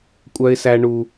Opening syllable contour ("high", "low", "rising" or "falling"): high